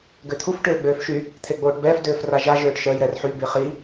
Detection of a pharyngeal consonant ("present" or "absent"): present